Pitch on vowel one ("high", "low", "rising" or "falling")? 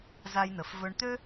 low